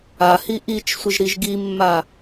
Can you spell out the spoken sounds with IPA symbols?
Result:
a h i ʔ i t͡ʃ sʷ ɪ ʒ ɾ i ʒ ɡ i mː a

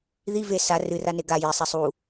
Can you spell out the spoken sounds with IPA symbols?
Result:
ð i v e s a r ɨ r a n e ɡ a j e sˤ e sˤ u

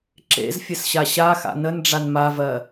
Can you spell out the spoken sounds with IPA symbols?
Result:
ǁ ḛ z fʲ ə s ɕ a ɕ a x a̰ n ə n ɖ͡ʐ a n m a v ɜ

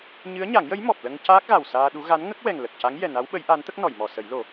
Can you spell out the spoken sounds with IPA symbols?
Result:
ɲ ɨ˧˥ ə̯ ɲ a˨˩˦ ŋ j ə˧˥ j m ɔ˨˩ p̚ l ə˧ ŋ c aː˦˥ k̚ ɣ a˨˩ w s aː˧ ɗ u˧˥ ɣ a˧˥ n ŋ ə˦˥ k̚ w ɛ˨˩ ŋ l ə˨˩ k̚ c a˧˥ ŋ j ɛ˨˩ n a˧˥ w ɓ ə˧˥ j ʔ a˧˥ n t̪ ə˦˥ k̚ n ɔ˨˩˨ j m ɔ˨˩˨ s ə˨˩˦ j l o˨˩˦

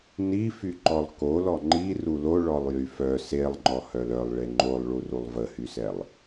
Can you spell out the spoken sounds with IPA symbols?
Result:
n i f y ǃ ɔ lˠ k o l ɔ ŋ͡ǃ i r u l o ɭ ɔ lˠ j y f œ s e lˠ ŋ͡ǃ ɔ h œ l œ lˠ ɭ e ŋ͡ǃ o lˠ ɭ u r u lˠ v ə h y s ɛ lˠ

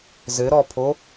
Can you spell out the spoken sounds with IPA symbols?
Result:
z ɘ ɾ ɔ pʰ o

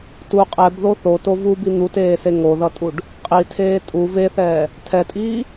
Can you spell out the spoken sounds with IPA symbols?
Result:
t u qʼ ɛ b ð o θ o t o v u b i n̪ u t eː s e ŋ o ð ʌ tʼ u ɖ | qʼ i tʰ eː tʼ u v e θ ɛː | tʰ ɛ tʼ iː

